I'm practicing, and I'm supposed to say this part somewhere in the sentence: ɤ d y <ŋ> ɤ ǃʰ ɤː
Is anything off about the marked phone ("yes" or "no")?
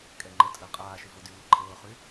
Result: no